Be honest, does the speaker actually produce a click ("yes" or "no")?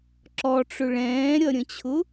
yes